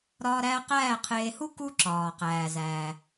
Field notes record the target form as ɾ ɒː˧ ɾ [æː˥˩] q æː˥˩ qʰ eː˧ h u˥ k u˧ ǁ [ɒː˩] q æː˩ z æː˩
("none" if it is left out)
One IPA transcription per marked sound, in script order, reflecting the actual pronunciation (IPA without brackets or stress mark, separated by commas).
æː˧, ɒː˩